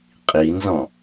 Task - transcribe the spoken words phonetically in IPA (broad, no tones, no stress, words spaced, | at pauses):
qʼinzɔ̃